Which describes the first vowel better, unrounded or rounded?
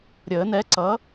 unrounded